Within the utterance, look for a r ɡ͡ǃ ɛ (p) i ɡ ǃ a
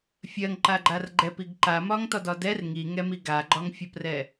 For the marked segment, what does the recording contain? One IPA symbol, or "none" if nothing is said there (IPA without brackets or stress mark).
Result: p